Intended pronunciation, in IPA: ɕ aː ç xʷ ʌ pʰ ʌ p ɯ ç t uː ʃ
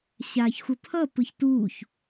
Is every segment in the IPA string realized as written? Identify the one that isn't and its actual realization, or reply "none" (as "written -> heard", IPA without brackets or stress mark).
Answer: ʃ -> ç